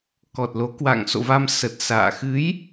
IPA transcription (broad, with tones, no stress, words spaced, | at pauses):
kɔ˨˩t̚lo˨˦ kwa̰˧˨ŋso̰˧˨va˧m sə˨˩t̚ sa̰ː˧˨ xɨ˨˦j